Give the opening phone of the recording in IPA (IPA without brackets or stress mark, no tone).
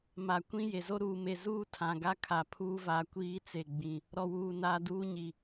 m